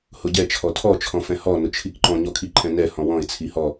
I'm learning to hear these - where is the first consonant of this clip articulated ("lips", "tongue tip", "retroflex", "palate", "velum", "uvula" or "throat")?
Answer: throat